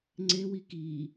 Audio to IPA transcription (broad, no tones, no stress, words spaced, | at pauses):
ŋ͡ǀewi ki